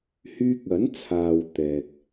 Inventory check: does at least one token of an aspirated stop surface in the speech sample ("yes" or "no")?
yes